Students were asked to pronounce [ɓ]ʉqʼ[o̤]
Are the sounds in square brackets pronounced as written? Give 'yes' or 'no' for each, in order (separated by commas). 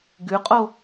no, no